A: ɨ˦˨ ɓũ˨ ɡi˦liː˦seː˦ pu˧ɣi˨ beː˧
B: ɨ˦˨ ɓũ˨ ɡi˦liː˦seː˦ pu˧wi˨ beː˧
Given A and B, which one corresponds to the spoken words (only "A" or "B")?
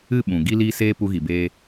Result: A